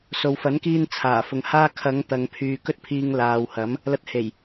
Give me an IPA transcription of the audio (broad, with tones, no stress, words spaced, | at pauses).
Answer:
so˨wfɐ˨˥nkiː˧n t͡sʰaː˨˩fʊ˨ŋhaː˥ kʰɐ˨˧ŋ t̪ɐ˨˧ŋpʰyː˨ kɵ˥t̚pʰiː˧ŋ laː˨whɐ˨˥m | lɐ˧t̚he˨˩j